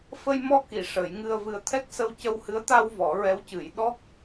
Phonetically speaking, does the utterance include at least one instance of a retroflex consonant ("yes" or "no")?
yes